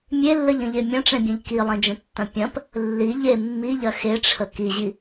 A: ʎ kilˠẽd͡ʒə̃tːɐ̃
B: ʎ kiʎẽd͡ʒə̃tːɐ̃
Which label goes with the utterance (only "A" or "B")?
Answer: A